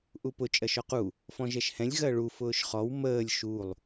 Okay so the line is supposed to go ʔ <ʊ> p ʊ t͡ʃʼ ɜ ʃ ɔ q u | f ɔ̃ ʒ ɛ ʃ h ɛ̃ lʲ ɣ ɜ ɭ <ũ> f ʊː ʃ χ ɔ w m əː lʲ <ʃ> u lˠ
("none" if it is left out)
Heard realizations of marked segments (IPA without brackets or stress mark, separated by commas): u, u, ʃ